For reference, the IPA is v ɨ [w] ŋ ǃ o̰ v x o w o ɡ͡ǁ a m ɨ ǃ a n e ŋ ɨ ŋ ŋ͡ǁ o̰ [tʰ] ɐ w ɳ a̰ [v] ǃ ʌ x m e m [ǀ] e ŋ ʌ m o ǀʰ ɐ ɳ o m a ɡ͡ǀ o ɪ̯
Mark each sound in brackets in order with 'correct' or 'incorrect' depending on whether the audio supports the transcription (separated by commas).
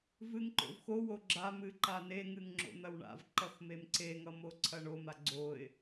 incorrect, incorrect, correct, correct